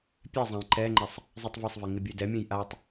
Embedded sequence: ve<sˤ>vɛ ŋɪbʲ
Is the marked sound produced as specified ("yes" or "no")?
yes